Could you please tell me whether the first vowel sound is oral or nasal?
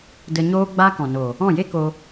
oral